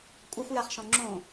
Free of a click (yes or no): no